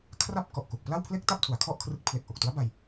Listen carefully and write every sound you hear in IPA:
kʰ r a˥˩ p̚ k ɔ˨˩ ʔ k u˨˩ k̚ p l a˥˩ w pʰ l e˥˩ k̚ t a˥˩ p̚ tʰ u˩˦ a̯ kʰ ɔ˥˩ ʔ kʰ r ɯ˦˥ k̚ pʰ l e˨˩ k̚ ʔ o˨˩ k̚ t u˦˥ a̯ b a˧ j

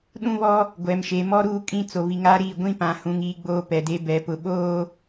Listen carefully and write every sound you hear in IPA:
ɗ ũ˦ β ɔ˦ | ɡʷ ɛ˨ m ʃ e˨ m ɔ˦ ɾ uː˦ kʼ ĩ˦ t͡s o˨ β i˨ ŋ aː˦ ɾ iː˦˨ ɡʷ ĩ˦ p ã˨ h ũ˨ ŋ iː˦ ɡ͡b oː˦ p ɛ˨ d e˦ b ɛ˨˦ p ʊ˨ ɓ oː˦

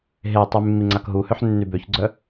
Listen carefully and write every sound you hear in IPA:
ɦ e tˤ y mː i ŋ͡ǀ a k ɦ u h ø ħ nː y b ø ç ɡ͡ǀ œ

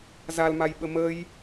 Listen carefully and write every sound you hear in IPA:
z a l m a j ɓ ə m ə j

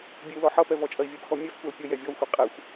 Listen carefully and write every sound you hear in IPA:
bʲ e u̯ l ɔ ħ ʌ p ɛ v ɔ t͡ʃʼ ɐ i̯ vʲ e p x ɔ mʲ ɛ f kʷ a l pʲ ə j ɛ vʲ ɔ u̯ xʷ ɛ qʼ ɛ xʷ

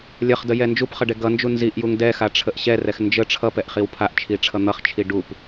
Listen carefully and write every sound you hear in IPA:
lʲ ʌ χ d ə j ɛ n d͡ʒ u p χ ʌ ɖ ɛ ɡ ʌ n d͡ʒ u n z i ʔ j u ŋ d ɛ x a ʈ͡ʂʰ ə ʔ ɕ ɛ r ɛ x n d͡ʒ ə ʈ͡ʂʰ ʌ p ɛ ʔ χ i w pʰ a ʔ t͡ʃʰ i ʈ͡ʂʰ ʌ n̪ ʌ χ t͡ʃʰ i ɖ u p

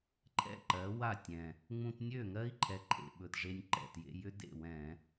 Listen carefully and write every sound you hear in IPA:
ǃʰ ɛ̰˥˩ ǃ ɜ˩˥ w a˥˩ tʲ ɛ̃˨˩ | ŋ͡m ũ˧ t nʲ ø˥˩ ŋ ɜ˦˥ i̯ ǃʰ ɛ˩˥ ǃʰ ḛ˨˩ ɓ ɵ˨˩ t ʐ e˧ nʲ ǃ ɛ̰˨˩ t j ḛ˧ j ʏ˦˥ d ḛ˥˩ w ɛ̃˧˩˧

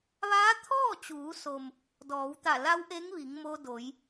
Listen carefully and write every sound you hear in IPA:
ʋ aː˧˥ t̪ʰ ɔː˥˨ t͡ɕ uː˩˧ s o˩ m | d ɔː˩˧ w t̪ a˧˩ l a˧˥ w ʔ e˧˥ ŋ ʋ i˩˧ ŋ m o˧ d o˩˧ j

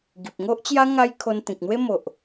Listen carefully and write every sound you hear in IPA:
ɡ i˨ p̚ ŋ o˦ ʔ t͡ɕ j a˦ ŋ a˦ j kʰ o˧ n t̪ ĩ˨ k̚ n̪ w e˦ m o˨ ʔ

